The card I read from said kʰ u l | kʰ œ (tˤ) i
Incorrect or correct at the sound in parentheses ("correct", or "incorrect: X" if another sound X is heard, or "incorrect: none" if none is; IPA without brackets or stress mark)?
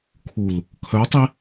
correct